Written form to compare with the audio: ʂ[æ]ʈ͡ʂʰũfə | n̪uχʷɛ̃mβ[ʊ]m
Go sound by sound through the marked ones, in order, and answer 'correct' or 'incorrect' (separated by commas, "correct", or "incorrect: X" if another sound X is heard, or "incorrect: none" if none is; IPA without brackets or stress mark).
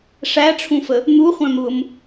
correct, correct